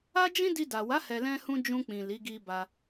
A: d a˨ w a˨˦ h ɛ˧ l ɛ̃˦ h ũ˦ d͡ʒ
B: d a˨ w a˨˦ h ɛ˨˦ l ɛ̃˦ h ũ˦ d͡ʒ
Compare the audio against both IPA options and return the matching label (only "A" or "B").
A